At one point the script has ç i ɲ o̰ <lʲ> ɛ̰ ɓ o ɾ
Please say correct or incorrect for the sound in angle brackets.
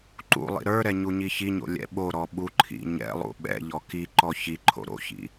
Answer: correct